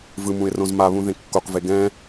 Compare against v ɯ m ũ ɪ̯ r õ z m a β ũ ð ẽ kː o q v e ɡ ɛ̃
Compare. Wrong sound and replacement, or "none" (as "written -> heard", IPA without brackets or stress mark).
none